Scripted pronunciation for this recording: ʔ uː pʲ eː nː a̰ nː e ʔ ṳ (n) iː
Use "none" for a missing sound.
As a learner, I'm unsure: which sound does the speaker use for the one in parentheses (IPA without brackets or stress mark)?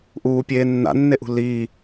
l